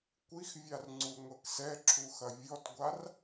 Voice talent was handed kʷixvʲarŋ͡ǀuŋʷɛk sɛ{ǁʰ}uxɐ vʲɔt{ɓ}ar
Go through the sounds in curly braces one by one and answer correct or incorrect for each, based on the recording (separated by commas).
correct, incorrect